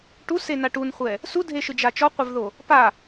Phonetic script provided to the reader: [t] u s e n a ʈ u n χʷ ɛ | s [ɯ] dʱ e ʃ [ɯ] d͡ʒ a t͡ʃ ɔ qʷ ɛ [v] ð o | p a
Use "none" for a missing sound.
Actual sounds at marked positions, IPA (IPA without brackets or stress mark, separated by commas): ʈ, u, ɯ, v